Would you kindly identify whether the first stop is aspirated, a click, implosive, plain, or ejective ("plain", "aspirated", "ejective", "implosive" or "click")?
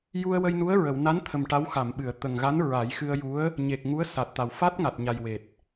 aspirated